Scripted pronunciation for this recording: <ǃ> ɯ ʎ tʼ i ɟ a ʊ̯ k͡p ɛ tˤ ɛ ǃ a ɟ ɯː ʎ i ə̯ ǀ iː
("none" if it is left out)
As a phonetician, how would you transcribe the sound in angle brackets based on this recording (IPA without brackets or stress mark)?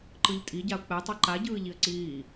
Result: ǃ